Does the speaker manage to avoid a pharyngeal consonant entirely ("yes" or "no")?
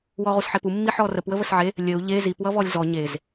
no